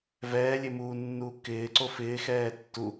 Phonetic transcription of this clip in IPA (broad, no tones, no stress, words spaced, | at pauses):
vɛːlʲe muːnːuː kɪːǀo fɪːxɛː tːu